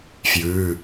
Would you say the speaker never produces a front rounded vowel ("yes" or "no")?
yes